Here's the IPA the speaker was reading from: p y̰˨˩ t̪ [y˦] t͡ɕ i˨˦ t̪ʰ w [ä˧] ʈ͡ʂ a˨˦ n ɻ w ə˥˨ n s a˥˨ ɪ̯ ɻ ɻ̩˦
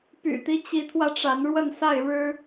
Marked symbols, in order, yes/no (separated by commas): no, yes